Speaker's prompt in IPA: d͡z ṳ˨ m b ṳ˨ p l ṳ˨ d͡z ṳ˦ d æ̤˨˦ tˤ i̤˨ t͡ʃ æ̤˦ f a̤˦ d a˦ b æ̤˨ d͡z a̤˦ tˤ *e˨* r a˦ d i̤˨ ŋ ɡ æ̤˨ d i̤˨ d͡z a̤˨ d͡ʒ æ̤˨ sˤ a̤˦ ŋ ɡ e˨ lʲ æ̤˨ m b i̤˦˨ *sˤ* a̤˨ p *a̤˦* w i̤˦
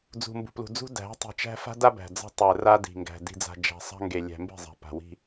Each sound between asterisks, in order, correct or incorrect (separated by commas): incorrect, incorrect, incorrect